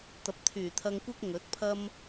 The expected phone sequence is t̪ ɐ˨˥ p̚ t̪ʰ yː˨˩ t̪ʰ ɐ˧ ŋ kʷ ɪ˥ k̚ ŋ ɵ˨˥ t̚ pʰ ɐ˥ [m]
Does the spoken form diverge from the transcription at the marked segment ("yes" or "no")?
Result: no